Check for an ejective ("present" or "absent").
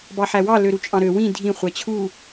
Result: present